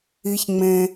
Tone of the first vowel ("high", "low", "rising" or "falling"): low